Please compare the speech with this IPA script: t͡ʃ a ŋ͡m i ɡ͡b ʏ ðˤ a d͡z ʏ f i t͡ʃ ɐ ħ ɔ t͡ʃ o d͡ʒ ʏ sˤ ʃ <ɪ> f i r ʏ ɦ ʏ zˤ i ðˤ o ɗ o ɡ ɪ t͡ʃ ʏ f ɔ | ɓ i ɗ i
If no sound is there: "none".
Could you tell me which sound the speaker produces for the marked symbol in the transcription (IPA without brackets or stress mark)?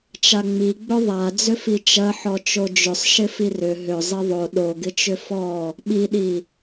ɪ